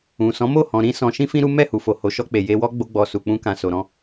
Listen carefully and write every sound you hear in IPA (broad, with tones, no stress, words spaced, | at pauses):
ũ˨sɔ̃˨˦mo˦˨ hɔ̃˨ ɾĩ˧ sɔ̃˨ʃĩ˧fĩ˧ ɾu˦ mɛ˦˨hu˨fo˨ ho˨˦ʃɔ˧k͡pe˨ je˧wɔ˦ ɡ͡bo˧ɡ͡bɔ˨ su˨k͡pũ˧kã˨ so˨ɾɔ̃˧